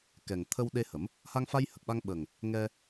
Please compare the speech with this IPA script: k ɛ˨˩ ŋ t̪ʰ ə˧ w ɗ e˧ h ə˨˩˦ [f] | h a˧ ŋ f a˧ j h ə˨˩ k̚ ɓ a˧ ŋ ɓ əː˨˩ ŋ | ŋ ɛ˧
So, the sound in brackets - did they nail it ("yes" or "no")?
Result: no